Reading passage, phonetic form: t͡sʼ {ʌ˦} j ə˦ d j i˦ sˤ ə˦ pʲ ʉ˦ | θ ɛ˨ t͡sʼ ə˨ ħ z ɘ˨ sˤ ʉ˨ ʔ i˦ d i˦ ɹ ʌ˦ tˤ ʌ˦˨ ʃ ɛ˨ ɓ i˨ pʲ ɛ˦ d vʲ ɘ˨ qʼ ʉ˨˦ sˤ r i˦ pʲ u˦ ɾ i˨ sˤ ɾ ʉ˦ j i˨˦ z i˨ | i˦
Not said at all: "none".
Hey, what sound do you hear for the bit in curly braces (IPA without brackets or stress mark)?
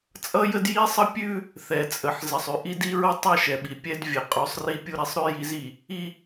ʌ˦